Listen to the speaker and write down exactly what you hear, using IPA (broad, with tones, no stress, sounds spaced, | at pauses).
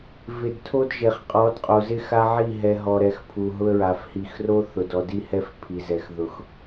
v ɪ˨ d tʰ o˦ d ʒ e˨ χ qʼ ɔ˨˦ d qʼ o˨ z ɪ˦ x a˦ ʕ i˦˨ ɦ ɛ˨ ɦ ɔ˨ ɾ ɛ˨ x pʰ u˨ ɦ ʊ˦ ə̯ ɹ a˨ f h i˨ x r o˦ θ ʊ˨ d ɔ˨ d i˦ h ɛ˦ f pʰ i˨ z ɛ˨ x ð ʊ˨ x